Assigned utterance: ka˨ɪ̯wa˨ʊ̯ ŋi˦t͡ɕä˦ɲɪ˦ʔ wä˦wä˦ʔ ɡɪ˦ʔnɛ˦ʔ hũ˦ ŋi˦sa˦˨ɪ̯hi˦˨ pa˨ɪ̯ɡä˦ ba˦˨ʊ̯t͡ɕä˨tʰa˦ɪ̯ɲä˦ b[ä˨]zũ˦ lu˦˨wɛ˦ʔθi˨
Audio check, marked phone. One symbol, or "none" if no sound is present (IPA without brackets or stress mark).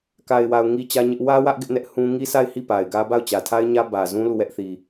ä˨